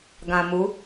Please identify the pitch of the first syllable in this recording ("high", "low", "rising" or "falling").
low